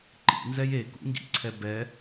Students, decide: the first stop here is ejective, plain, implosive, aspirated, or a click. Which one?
click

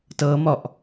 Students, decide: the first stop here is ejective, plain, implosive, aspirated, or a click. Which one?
plain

